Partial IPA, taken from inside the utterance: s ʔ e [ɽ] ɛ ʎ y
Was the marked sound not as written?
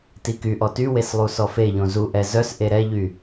yes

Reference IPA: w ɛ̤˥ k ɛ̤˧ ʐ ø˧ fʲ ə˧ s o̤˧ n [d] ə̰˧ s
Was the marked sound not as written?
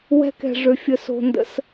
no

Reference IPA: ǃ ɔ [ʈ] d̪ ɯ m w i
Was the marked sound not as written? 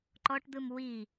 no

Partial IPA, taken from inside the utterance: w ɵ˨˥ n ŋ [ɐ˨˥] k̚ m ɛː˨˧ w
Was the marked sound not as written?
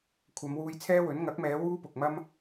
no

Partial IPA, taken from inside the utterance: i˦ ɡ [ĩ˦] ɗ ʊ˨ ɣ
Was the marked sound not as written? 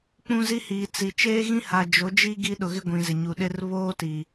yes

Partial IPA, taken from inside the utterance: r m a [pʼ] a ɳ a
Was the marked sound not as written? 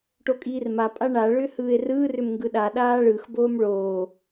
no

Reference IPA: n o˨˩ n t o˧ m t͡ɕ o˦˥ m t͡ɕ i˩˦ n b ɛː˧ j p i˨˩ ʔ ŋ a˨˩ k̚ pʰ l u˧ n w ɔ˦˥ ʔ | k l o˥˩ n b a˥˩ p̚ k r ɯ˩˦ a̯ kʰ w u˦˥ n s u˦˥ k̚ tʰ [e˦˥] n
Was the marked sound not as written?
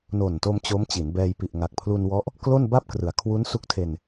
yes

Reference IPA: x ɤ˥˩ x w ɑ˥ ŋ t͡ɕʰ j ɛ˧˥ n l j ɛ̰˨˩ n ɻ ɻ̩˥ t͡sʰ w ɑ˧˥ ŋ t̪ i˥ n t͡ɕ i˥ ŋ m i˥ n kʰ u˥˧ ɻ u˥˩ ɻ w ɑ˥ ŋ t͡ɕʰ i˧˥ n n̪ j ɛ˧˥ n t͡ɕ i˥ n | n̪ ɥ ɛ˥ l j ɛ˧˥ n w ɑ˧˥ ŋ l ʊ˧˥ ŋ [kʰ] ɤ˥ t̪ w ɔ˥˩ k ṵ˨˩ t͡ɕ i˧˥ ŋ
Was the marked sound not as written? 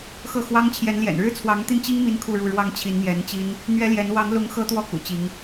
yes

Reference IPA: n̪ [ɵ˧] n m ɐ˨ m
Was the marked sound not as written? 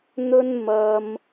no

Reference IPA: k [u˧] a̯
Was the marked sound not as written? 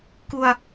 no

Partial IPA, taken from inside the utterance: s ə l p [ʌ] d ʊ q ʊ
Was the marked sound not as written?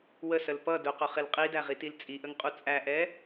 no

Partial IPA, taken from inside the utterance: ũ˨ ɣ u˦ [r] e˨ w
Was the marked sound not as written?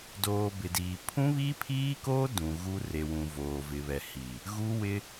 no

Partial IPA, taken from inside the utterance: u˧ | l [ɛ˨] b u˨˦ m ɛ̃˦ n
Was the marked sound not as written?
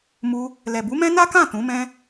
no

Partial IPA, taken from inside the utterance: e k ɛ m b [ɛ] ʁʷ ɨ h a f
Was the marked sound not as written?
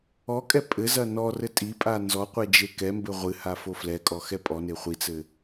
yes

